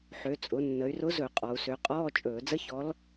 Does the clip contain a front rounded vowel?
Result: yes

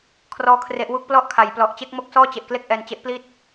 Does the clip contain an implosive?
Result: no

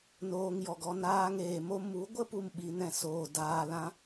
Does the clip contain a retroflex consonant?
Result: no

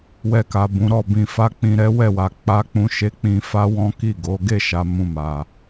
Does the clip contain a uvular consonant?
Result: no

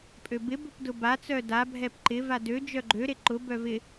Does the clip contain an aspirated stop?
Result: no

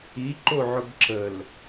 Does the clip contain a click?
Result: yes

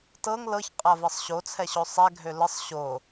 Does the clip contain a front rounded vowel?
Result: yes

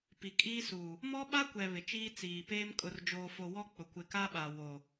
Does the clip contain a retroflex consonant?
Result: no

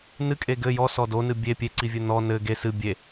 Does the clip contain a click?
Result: yes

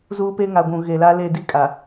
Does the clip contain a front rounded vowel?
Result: no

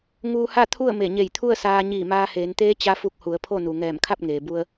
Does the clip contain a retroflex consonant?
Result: no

